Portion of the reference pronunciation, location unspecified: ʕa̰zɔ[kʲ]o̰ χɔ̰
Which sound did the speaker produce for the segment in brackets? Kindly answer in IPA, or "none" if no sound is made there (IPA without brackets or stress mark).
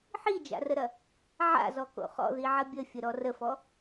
k